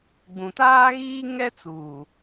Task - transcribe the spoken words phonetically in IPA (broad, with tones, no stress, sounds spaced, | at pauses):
ɡ͡b ũ˨ t aː˦ ɣ iː˦ ŋ ɛ˦ t͡s uː˨